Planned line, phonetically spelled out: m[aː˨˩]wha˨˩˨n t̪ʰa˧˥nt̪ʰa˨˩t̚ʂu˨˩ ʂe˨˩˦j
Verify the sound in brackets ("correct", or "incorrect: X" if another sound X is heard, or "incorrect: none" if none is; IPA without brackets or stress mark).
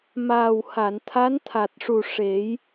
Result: correct